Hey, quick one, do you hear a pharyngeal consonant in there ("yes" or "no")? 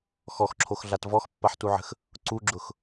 yes